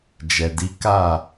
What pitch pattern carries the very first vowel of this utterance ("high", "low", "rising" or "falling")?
low